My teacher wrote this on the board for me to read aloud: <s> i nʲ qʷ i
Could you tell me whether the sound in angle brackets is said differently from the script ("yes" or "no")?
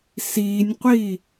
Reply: no